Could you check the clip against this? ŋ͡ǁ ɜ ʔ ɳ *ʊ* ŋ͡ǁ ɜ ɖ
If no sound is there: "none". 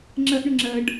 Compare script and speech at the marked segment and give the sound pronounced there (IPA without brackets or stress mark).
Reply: ʊ